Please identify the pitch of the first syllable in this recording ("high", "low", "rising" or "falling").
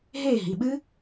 falling